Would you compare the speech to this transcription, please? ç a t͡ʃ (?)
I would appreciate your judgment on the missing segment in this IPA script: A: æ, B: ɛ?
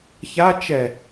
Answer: B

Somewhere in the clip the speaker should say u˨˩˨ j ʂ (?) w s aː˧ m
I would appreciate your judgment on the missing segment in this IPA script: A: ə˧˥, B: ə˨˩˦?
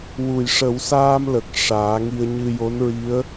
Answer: B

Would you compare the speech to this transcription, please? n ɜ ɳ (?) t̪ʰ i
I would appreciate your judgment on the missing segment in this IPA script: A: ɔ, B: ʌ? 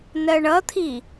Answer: B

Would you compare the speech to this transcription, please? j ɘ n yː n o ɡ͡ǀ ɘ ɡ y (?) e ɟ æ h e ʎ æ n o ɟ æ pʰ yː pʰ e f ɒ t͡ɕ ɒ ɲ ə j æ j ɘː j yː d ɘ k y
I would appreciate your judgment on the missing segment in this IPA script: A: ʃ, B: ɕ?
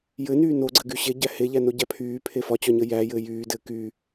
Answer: B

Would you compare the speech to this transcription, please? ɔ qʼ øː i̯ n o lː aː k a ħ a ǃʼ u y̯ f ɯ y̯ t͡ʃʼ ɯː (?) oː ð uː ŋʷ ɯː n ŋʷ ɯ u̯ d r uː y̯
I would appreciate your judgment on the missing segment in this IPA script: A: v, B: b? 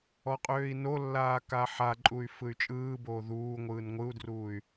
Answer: B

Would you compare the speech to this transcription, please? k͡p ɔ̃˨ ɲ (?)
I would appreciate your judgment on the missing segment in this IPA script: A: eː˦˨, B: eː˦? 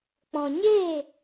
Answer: A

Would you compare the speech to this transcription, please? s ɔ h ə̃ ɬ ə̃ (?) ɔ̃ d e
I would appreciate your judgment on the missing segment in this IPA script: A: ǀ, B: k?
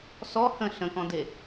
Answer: B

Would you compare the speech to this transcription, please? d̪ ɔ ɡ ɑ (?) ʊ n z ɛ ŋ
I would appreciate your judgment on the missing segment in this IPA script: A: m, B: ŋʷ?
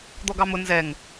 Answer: A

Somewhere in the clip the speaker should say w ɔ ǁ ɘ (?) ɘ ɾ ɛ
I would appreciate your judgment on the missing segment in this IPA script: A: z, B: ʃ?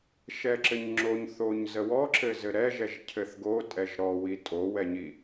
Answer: A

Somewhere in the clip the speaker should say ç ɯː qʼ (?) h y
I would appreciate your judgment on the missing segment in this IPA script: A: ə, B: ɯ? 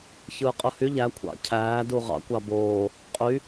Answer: B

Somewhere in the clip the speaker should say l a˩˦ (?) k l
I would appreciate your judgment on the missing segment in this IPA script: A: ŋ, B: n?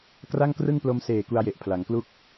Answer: A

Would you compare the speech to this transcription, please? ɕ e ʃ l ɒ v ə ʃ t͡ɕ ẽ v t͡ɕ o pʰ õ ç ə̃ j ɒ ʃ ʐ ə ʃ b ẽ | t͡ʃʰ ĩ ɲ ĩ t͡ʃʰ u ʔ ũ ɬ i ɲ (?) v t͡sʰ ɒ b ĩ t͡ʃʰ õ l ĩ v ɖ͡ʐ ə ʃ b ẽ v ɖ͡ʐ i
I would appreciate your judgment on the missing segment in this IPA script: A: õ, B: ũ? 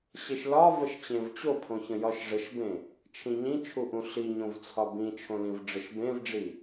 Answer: A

